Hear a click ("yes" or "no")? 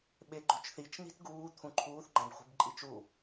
yes